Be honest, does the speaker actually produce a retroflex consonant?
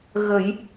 no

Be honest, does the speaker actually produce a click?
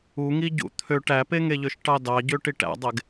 no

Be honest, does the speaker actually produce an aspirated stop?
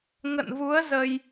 no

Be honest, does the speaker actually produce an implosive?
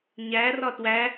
no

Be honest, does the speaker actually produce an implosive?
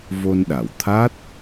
yes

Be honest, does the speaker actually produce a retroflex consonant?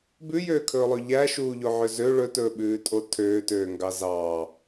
yes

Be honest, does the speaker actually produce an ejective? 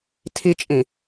yes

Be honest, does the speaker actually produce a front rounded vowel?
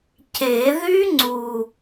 yes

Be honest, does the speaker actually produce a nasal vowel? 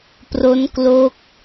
no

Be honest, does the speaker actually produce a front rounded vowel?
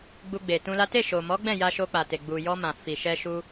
no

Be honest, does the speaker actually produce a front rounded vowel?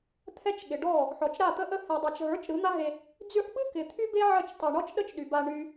yes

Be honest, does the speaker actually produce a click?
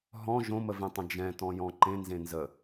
yes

